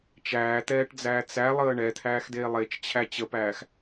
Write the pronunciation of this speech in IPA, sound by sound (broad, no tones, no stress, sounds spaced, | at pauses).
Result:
t͡ʃ æː t̪ ɛː ʈ d͡z æː t͡s æ lˠ əː ɳ ɛ t̪ʰ æː x d eː lˠ e t͡ʃ t͡ɕʰ æ t͡ɕ ə p æː x